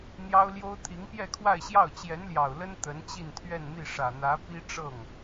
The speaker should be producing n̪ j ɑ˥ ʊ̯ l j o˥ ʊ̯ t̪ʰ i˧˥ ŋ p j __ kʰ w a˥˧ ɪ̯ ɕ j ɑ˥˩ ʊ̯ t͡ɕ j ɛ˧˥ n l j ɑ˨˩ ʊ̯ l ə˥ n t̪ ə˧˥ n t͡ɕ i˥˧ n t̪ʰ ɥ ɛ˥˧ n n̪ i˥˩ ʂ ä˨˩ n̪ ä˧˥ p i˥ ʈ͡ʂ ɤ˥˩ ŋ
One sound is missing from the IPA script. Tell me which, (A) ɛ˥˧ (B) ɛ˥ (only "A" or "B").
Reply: A